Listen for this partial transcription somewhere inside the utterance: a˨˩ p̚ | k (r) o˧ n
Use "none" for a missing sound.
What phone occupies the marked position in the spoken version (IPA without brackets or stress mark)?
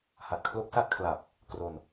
r